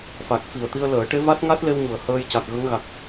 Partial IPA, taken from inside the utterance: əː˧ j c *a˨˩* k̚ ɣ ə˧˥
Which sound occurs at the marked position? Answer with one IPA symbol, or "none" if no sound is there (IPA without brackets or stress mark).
a˨˩